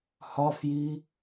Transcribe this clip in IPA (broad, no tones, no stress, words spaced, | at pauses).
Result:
hɒfji